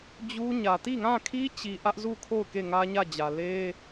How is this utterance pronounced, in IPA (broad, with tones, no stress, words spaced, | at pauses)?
d͡ʑu˦ɲä˨ ti˦˨ŋã˦˨kʰi˦t͡ɕi˨ ʔä˦ʔzu˦˨kʰo˦˨ʊ̯ ke˦˨ŋä˦ɲä˦˨d͡ʑä˨ le˦